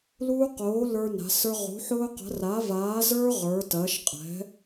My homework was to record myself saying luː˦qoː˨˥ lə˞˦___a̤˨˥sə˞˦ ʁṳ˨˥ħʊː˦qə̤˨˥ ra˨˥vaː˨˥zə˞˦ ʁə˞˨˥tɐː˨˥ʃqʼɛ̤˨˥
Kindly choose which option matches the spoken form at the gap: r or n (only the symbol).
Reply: n